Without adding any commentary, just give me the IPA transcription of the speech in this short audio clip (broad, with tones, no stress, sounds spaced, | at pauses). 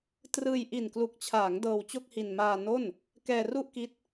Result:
t r ɯː˧ j ʔ i˨˩ n k l u˨˩ k̚ t͡ɕʰ aː˩˦ ŋ d ɤː˧ w t͡ɕ o˥˩ k̚ h i˧ n m aː˧ n o˥˩ n | k ɛː˧ r u˥˩ ʔ k i˦˥ t̚